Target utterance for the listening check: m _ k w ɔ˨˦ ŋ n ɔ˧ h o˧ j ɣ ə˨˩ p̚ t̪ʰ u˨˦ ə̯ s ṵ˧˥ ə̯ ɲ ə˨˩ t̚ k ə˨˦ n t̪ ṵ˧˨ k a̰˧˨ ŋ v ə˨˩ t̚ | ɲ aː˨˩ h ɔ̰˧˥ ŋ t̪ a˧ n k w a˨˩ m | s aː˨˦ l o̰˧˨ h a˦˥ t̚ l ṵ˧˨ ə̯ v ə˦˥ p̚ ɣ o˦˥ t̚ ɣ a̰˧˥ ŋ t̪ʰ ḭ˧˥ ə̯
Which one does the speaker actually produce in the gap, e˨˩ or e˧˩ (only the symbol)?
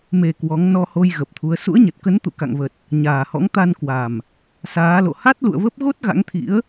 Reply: e˨˩